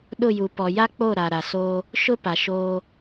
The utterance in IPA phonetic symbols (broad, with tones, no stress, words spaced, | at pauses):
ɗʊ˦˨ju˨ pɔ˨ja˦k͡po˦˨ ɾa˨ɾa˨soː˦ | ʃʊ˦pa˨ʃoː˦